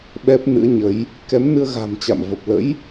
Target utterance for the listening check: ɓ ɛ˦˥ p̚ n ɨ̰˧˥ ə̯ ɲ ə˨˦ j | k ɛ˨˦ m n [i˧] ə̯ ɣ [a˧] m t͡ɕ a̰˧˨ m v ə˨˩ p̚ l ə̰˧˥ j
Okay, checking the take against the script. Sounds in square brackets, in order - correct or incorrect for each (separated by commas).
incorrect, incorrect